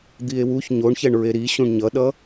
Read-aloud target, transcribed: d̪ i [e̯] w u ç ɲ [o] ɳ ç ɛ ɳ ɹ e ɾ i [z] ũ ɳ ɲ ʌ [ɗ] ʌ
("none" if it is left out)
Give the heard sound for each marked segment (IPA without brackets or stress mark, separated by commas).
e̯, o, ɕ, ɗ